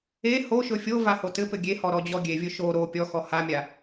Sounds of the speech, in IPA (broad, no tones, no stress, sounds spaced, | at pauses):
e h o ʃ ɵ fʲ o v a h o t ɘ p ɘ ɡʲ e h ɔ ɾ ɔ d͡ʑ ɔ ɡʲ e vʲ ɵ ʃ o ɾ o pʲ ɔ x ɔ h a mʲ a